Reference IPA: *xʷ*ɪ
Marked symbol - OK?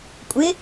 no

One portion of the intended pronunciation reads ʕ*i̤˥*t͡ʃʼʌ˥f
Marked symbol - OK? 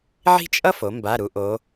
yes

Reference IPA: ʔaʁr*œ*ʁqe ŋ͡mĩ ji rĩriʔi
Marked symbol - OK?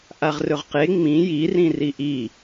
no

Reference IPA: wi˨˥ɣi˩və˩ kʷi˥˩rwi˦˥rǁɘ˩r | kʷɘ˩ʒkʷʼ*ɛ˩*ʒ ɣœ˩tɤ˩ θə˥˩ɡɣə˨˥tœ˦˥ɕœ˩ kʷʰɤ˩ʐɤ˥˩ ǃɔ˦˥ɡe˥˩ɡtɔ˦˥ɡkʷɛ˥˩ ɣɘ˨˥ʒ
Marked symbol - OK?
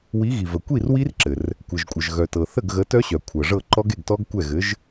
no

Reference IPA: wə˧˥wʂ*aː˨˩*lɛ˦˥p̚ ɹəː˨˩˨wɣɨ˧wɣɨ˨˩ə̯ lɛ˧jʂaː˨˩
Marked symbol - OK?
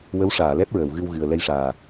no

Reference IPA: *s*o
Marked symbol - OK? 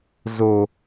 no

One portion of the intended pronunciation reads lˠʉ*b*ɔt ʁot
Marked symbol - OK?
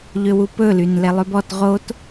yes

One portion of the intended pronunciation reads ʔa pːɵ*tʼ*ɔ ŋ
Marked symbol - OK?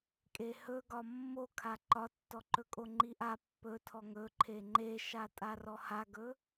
no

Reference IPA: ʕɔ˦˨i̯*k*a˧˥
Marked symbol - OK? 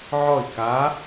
yes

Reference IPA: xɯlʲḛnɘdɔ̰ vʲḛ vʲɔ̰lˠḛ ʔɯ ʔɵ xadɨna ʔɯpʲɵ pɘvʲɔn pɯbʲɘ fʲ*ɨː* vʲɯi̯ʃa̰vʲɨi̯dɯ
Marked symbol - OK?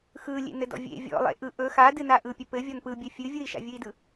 no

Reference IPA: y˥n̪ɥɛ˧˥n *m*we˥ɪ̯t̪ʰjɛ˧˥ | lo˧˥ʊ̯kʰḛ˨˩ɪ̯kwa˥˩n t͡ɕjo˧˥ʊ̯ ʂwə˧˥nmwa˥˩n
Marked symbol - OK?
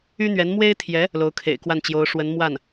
yes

